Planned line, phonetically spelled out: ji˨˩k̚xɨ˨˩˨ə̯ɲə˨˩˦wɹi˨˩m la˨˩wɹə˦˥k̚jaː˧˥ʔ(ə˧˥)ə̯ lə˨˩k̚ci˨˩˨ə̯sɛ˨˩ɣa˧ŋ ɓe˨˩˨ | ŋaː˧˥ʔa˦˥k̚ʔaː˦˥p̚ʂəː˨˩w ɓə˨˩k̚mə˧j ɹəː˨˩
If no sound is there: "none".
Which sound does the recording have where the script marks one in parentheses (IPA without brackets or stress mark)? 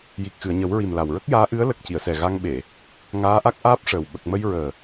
ɨ˧˥